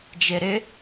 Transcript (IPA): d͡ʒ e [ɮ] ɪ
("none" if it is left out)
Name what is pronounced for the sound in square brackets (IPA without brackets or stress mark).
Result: ɾ